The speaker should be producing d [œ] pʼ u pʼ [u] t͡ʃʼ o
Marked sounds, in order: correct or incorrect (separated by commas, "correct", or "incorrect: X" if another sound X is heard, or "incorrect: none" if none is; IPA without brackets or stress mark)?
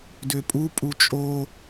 incorrect: ø, correct